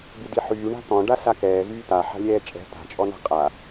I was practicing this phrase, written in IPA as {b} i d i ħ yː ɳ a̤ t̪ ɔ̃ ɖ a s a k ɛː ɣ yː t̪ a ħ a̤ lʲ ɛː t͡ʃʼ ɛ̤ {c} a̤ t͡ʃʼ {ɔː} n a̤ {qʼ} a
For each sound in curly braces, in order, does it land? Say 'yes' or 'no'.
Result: yes, no, no, yes

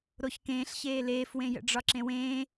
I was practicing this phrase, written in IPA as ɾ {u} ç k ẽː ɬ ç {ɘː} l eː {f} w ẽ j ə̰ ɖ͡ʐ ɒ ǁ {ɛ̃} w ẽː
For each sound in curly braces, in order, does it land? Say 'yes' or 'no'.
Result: no, no, yes, no

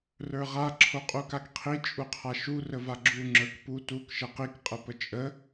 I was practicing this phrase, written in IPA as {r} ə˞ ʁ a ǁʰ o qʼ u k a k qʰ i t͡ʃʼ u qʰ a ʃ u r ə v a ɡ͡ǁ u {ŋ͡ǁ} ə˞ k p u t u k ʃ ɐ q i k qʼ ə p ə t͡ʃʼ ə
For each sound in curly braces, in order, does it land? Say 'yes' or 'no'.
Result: yes, yes

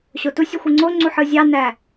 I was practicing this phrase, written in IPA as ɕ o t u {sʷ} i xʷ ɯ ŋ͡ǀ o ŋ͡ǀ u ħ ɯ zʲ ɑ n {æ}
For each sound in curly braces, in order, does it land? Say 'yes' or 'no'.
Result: no, yes

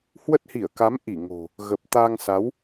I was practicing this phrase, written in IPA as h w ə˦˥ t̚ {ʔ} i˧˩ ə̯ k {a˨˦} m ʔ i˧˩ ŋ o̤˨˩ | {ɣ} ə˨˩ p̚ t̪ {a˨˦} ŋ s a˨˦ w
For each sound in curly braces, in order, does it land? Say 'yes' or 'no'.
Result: no, yes, yes, no

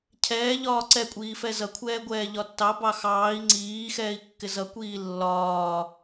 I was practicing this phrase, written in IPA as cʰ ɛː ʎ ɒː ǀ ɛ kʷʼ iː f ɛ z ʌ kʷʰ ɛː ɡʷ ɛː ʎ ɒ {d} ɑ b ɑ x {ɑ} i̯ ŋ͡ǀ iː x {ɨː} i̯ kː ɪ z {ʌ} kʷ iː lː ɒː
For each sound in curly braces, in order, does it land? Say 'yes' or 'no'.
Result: no, no, no, yes

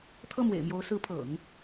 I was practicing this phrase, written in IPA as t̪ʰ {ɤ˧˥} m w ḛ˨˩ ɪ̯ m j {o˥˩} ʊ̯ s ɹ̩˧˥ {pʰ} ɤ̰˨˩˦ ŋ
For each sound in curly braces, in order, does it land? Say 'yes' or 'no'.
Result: no, no, yes

